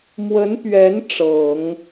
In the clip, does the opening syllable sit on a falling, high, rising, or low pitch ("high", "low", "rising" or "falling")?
rising